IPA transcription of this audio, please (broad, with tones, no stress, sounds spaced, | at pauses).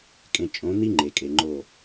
kʼ ẽ˨ t͡ʃʼ õ˨˦ n̪ i˦ ŋ͡ǃ e˨ kʼ e˨ ŋ͡ǃ o˦˨